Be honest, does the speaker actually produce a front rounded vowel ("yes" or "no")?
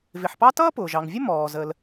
no